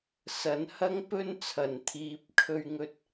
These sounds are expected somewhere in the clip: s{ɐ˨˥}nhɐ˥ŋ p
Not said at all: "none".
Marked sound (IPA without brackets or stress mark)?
ɐ˨˥